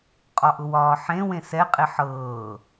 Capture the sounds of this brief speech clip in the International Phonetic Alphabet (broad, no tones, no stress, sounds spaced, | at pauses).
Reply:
qʼ ɒ ʔ ʊ w ɒː ħ ẽ w ẽ s ɛ qʼ e ħ ɤː